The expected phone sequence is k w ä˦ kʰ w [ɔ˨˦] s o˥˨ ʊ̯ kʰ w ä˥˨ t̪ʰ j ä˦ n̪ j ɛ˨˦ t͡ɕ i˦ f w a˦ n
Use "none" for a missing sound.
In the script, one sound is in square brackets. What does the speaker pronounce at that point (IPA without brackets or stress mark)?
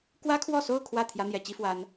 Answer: ɔ˥˨